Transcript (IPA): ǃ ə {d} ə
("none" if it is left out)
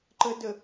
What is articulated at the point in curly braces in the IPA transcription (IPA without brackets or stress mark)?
d